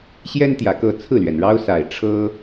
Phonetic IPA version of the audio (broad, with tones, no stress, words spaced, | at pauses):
ɕjɛ˦nt̪jä˨˩kɤ˥˨ t͡sʰɹ̩˥˨lɥɛ˩nɻɑ˦ʊ̯ sa˨˩ɪ̯ʈ͡ʂʰɤ˦